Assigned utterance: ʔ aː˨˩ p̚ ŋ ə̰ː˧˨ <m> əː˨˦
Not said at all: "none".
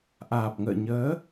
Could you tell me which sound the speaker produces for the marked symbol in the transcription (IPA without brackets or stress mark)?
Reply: ɲ